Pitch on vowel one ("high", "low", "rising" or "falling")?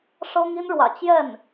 high